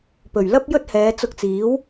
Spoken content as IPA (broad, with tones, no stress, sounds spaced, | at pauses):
p ɵ˨˩ ɥ l ɐ˥ p̚ j ɵ˥ t̚ h ɛː˨˧ t͡s ʊ˧ k̚ t͡s iː˨˥ w